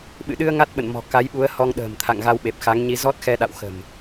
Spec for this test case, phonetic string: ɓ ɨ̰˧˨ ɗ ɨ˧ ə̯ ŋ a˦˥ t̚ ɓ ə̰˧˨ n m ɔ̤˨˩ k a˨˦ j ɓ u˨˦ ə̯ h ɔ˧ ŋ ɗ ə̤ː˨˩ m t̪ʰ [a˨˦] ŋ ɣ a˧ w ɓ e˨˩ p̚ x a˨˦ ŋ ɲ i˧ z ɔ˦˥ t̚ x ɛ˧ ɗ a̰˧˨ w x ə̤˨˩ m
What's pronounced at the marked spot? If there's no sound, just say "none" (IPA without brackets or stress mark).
a̰˧˨